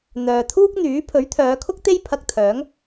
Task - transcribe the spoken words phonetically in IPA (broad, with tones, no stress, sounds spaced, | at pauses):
n̪ œː˨ t̪ʰ uː˥ k̚ n̪ yː˨˥ pʰ ɵ˨˥ ɥ t̪ʰ œː˨˧ kʰ ʊ˥ k̚ t̪ e˥ j pʰ ɐ˧ k̚ t̪ʰ œː˨˥ ŋ